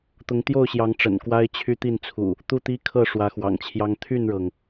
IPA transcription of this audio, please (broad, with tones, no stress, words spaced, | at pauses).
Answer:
t̪ʊ˨˦ŋt̪jo˥˨ʊ̯ɕjɑ˨˦ŋ ʈ͡ʂə̰˨˩n kwa˦ɪ̯t͡ɕʰy˦ t̪i˥˨nt͡sʰṵ˨˩ | t̪u˥˨t̪i˦kʰɤ˥˨ ʂwä˨˦xwɑ̰˨˩ŋt͡ɕʰjɑ˦ŋ t̪ʰy˥˨nɻɤ˩ŋ